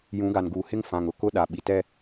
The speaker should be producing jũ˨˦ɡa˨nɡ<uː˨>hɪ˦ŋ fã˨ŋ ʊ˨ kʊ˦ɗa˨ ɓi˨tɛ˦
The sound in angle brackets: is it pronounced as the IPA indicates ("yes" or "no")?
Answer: yes